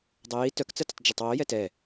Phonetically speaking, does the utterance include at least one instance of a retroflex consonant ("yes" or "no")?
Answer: no